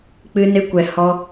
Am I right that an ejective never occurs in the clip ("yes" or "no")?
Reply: yes